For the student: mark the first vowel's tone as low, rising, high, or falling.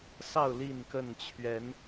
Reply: falling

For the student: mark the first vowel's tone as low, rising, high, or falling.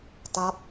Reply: falling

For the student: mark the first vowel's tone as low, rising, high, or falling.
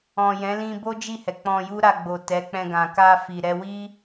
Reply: low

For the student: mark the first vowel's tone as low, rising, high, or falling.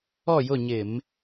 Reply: falling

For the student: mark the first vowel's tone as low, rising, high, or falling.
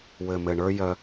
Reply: low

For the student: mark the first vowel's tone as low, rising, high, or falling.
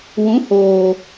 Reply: rising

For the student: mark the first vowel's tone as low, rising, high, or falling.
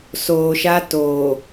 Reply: low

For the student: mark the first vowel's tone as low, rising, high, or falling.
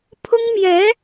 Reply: high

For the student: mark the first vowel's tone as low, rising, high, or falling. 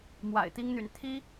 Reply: low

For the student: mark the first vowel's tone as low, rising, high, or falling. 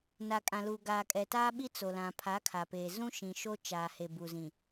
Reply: low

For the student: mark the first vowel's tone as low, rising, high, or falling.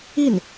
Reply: falling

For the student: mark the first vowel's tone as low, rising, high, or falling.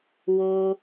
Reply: high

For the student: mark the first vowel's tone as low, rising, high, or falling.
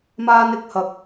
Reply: high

